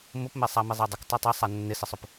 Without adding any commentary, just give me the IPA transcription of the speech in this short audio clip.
m ʊ p m e sˤ a m i zˤ a dˤ ɪ k tˤ a tˤ a sˤ a nː ɪ s ɪ sˤ ʊ p

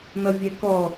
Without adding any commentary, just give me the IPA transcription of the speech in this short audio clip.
n ʌ vʲ ɛ k ɔ

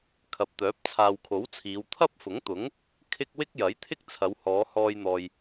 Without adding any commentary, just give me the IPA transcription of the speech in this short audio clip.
kʰ ɐ˨ p̚ t̪ œː˨˥ p̚ t͡sʰ aː˨ w kʰ o˨˥ w t͡sʰ iː˨˧ w t̪ʰ ɐ˥ p̚ f ʊ˨˥ ŋ t̪ ʊ˨˥ ŋ | kʰ ɪ˥ k̚ w ɪ˥ k̚ j ɐ˨˥ j t̪ʰ ɪ˥ k̚ t͡sʰ ɐ˨˧ w h ɔː˨˧ h ɔː˧ j n̪ ɔː˨ j

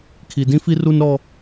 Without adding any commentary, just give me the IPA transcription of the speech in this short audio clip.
kʰ i˨ d ĩ˦ f i˦ r u˦ n ɾ ɔ˦

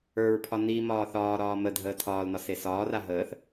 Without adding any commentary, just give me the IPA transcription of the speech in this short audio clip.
ə˞ ɹ pʰ ɒ n i m ɒː θ ɒː ɾ ɒː m ə dʱ əː tʰ ɒː l n ɒ s e s ɒː r a ɦ əː θ

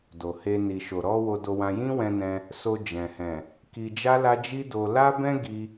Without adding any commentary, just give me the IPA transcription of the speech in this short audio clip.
d o˨ h e˧ n i˨ ʃ o˨ ɾ ɔ˧ w o˧ d o˧ w ã˧ j ĩ˦ w ɛ̃˧ n ɛ̃˧ | s o˧ d͡ʒ ɛ̃˨ h ɛ̃˨ | k i˧ d͡ʒ a˦ l a˦ d͡ʒ i˦ d o˧ l a˦ b ɛ̃˦ ɡ i˦

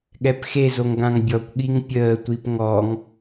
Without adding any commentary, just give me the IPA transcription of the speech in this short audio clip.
ɠ ɛ p x e z o ŋ ɡ ã ŋ bʲ ɔ kʷ ɠ i ŋ pʲ əː tʷ i p ŋ ɔ ŋ

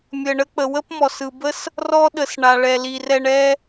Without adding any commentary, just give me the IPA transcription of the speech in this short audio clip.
mʲ ə˨ ɳ ə˧ k͡p ə˨ w ə˦ p m ɔ˨ s ɯ˨ b ə˦ s | r ɔ˧ ɗ ə˨ s ɳ a˨ ɭ ɛ˨ l i˨ r ɛ˨ ɳ ɛ˧

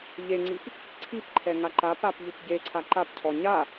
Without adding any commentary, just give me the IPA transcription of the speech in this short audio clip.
ʎ e ŋ͡ǀ i p | ǀʰ i p ǃʰ ɛ ŋ a ǃ a p a p ʎ u p ɟ e ǀʰ a ǃ a p cʰ ɔ ɲ a

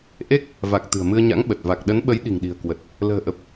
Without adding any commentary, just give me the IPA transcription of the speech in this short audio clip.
ʔ e˦˥ k̚ | v a˨˩ k̚ t̪ ɨ̤˨˩ ə̯ m ɨ˧ ə̯ ɲ a̰˧˥ ŋ ɓ ə˨˩ t̚ v a˨˩ k̚ ɗ ə˨˦ n ɓ ə˨˦ j ɗ i̤˨˩ ŋ ɗ i̤˨˩ ə̯ k w ə˨˩ t̚ | l ə̤ː˨˩ ʔ ə˨˩ p̚

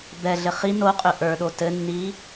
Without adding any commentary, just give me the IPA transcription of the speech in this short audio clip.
b ɛ ɮ ɘ χ i n o qʼ ʏ ʔ ə˞ ɗ o t ɘ nː i

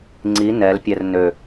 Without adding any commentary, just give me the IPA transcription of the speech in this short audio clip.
ŋ͡ǀ i n ɛ l pʲ ɛ r n ø

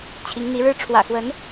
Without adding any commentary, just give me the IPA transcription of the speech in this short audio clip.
t͡ɕʰ i˨˦ ŋ n̪ i˨˦ ɻ ɻ̩˦ ʈ͡ʂʰ w ä̰˨˩ x w ə˨˦ n

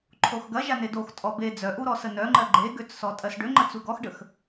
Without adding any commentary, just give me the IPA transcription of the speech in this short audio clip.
ǃʰ o x ɡ ɐ ʒ a n e d o x tʼ ɔ b e d͡z œ ʔ u ɾ ɔ s ə n œ ŋ͡ǃ ɜ ɡ͡ǃ e ɡ ø t͡s s ɔ tʼ ɜ s ɖ ø ŋ͡ǃ ə t͡s u ɡ ɔ x ɖ ə x

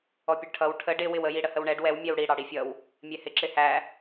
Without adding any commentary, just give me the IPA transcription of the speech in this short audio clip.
ɔ pʲ ʊ ɖ ʈʰ ʌ w ʈʰ ə ɖ ɪ w ɪ w ə j i ɽ ə h ə w ɳ ɛ ɖ w ɛ w mʲ ɛ w ɽ i ɽ ɑ ɽ i fʲ ʌ w | mʲ ɛ h ɪ ǁ ɪ h æ

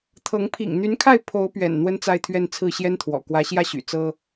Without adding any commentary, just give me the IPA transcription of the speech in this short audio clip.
t̪ʰ ɤ˧˥ ŋ pʰ ḭ˨˩ ŋ n̪ y˧˥ n kʰ a˥˩ ɪ̯ pʰ o˧˥ ʊ̯ p ɥ ɛ̰˨˩ n n̪ w ə˥ n t͡s a˥˧ ɪ̯ t̪ʰ ɥ ɛ˥˧ n t͡sʰ ɹ̩˥˩ ɕ j ɛ˥ n t̪ʰ w ɔ̰˨˩ k w ä˧˥ ɕ j ä˥˩ ɕ y̰˨˩ t͡s ɤ˥

